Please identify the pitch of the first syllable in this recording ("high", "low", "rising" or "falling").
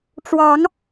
rising